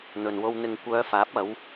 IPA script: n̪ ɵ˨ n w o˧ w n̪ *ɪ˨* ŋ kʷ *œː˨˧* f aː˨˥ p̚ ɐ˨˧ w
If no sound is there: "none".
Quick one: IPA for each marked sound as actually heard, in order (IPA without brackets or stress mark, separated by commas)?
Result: ɪ˨, œː˨˧